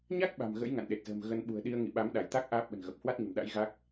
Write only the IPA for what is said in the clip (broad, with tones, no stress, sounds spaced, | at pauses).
ɲ a˦˥ k̚ ɓ a̤˨˩ m ɣ ə̰˧˥ j ŋ a̰˧˨ n ɗ e˨˩ t̚ z ə̤ː˨˩ m ɣ ə˧ n ɓ ṳ˨˩ ə̯ ɗ i˧ ə̯ ŋ ḭ˧˨ ɓ a˨˦ m ɗ a˧˩ j t̪ a˦˥ k̚ ʔ aː˦˥ p̚ ɓ ə̤˨˩ n ɣ ə˨˩ p̚ h w a˦˥ t̚ ɲ ə̤˨˩ m ɗ a̰˧˥ j ɣ a˦˥ k̚